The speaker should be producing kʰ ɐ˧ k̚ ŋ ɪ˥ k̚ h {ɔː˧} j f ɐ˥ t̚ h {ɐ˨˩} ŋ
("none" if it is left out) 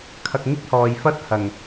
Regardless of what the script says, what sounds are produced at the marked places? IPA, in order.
ɔː˨, ɐ˨˩

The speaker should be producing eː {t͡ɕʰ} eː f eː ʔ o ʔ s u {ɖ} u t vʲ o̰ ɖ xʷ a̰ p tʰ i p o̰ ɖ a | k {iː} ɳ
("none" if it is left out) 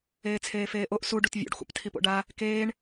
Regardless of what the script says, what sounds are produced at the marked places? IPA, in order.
t͡sʰ, ɖ, eː

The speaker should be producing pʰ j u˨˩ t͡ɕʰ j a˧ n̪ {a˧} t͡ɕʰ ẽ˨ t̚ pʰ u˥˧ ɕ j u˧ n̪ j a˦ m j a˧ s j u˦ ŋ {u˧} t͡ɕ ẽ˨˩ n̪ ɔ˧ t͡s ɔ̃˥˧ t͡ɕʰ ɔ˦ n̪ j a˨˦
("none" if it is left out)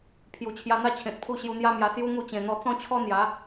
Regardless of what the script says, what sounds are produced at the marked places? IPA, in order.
a˦, u˥˧

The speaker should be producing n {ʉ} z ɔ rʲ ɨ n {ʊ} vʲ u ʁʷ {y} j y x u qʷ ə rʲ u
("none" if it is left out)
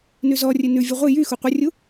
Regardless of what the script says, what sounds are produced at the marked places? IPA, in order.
ʉ, ʉ, ɨ

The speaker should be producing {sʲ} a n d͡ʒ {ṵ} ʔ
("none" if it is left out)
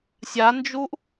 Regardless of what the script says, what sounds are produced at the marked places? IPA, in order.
sʲ, u

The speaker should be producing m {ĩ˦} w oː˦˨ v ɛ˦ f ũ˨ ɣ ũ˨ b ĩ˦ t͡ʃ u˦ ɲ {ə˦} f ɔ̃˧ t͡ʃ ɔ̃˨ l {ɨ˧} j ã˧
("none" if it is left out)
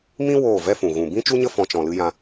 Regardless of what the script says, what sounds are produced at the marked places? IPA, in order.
ĩ˦, ə˦, ɨ˧

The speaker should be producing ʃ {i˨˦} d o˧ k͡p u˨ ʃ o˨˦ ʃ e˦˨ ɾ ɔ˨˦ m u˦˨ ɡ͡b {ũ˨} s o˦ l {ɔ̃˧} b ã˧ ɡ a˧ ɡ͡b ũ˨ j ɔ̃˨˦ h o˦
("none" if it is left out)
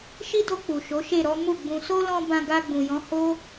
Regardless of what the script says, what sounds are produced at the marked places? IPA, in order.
i˦, ũ˧, ɔ̃˧

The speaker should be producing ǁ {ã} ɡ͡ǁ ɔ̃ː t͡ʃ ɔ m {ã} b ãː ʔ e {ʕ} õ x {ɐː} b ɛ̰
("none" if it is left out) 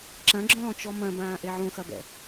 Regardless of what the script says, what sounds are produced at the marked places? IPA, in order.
ɐ̃, ɐ̃, ʕ, ɐ

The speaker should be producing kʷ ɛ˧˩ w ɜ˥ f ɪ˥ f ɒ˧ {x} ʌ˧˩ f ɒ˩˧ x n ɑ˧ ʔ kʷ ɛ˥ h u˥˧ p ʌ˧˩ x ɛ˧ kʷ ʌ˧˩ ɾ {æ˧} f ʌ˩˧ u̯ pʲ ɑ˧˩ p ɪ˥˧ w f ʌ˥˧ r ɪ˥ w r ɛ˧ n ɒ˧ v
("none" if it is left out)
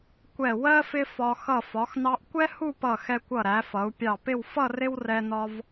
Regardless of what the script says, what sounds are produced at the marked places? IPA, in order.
x, æ˩˧

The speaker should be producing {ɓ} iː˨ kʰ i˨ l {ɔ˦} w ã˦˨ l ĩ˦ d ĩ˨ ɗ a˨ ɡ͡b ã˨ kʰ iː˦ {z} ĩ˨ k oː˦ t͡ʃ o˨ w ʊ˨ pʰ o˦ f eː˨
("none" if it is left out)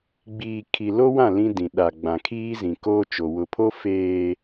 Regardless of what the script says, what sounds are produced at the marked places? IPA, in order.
ɡ͡b, o˦, z

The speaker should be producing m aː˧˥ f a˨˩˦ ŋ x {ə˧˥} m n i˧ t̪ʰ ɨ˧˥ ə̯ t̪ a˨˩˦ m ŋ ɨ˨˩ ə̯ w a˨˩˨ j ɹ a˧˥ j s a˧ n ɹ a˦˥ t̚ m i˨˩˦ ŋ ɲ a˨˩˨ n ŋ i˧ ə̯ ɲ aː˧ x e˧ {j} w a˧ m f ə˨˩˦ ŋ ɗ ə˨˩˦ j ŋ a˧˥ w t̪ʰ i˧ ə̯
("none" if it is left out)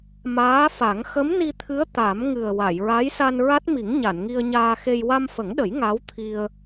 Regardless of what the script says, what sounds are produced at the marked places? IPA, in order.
ə˧˥, j

